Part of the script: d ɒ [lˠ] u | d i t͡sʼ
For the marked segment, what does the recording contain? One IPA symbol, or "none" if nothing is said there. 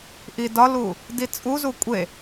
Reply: l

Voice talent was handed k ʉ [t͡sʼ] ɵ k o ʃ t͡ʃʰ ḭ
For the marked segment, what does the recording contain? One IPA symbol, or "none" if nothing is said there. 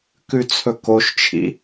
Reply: t͡sʰ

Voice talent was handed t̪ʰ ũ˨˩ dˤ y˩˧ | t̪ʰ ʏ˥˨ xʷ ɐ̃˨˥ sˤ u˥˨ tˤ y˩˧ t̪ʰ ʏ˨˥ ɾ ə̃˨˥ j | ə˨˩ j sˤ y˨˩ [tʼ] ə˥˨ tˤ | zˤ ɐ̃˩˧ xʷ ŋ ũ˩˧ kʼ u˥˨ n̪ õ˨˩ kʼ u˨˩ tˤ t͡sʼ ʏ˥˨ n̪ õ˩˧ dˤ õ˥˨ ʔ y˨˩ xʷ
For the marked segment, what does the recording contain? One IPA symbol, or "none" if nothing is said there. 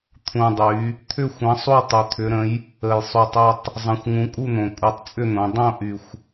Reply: tˤ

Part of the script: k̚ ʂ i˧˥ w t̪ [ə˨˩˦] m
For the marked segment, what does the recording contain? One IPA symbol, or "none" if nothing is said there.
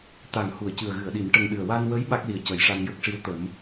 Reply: ə˨˩˦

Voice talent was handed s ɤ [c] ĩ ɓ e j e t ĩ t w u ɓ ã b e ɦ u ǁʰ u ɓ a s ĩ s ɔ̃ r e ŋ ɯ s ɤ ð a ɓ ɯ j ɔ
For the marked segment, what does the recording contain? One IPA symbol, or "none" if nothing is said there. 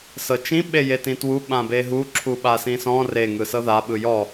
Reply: t͡ʃ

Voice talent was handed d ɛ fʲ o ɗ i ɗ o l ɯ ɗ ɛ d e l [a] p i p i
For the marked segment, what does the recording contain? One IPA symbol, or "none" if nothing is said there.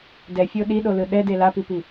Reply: a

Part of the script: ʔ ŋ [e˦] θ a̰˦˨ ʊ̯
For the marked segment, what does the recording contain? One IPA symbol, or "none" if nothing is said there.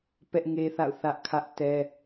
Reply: e˦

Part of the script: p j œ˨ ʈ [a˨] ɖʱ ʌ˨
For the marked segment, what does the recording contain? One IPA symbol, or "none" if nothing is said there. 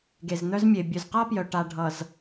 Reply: a˨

